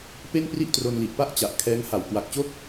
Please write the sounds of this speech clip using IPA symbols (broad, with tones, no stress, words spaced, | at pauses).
pe˥˩npri˥˩ʔtro˧nli˨˩ʔ pa˥˩ʔt͡ɕa˨˩ʔkʰɛː˦˥ŋha˨˩w kwa˨˩k̚t͡ɕo˥˩k̚